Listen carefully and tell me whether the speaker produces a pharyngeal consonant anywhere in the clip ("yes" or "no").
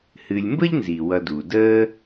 no